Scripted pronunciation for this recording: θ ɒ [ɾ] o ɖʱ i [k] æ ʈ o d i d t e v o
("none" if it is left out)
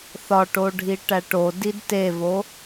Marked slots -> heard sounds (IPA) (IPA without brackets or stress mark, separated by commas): ʈ, ʈ